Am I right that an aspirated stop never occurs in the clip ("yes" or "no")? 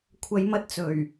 no